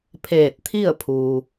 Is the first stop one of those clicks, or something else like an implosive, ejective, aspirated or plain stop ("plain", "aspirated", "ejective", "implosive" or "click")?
aspirated